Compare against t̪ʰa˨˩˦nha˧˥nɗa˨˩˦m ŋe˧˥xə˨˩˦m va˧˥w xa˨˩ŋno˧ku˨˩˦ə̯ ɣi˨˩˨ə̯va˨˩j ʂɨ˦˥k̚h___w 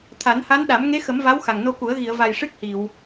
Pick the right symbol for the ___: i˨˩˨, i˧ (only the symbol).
i˨˩˨